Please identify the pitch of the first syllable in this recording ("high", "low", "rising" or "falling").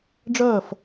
falling